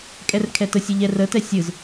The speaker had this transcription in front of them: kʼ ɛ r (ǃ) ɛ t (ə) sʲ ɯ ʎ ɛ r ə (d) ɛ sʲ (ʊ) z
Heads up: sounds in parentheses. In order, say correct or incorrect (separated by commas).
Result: incorrect, correct, incorrect, incorrect